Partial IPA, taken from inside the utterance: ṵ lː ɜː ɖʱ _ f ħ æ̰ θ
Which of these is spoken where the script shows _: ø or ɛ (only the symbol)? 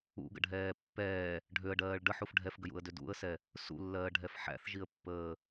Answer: ɛ